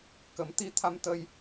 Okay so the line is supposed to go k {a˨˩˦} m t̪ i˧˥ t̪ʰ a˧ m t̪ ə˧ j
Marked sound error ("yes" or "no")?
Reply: yes